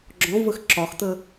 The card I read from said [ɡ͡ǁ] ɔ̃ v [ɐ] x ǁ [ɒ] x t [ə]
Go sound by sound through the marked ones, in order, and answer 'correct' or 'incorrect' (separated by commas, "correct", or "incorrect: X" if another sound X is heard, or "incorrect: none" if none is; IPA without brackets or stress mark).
correct, incorrect: ə, correct, correct